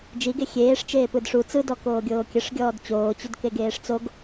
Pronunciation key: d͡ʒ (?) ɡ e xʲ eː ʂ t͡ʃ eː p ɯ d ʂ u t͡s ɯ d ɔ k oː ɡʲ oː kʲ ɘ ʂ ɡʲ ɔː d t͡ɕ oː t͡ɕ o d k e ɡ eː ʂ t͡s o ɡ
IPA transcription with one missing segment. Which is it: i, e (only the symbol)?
i